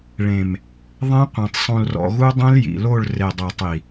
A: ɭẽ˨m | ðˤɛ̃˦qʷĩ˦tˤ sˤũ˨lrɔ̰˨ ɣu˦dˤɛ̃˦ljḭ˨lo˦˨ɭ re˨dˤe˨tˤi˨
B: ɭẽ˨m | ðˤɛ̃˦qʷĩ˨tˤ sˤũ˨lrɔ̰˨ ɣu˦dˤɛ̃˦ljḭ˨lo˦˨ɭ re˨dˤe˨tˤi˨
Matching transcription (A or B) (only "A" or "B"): B